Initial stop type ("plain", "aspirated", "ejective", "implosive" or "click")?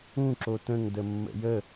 click